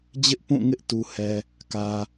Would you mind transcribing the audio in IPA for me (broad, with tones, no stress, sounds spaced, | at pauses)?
d͡ʑ ɪ˦ ʔ p ũ˦˨ ŋ ɪ˦ ʔ t u˦ h ɛ˦ | k ä˦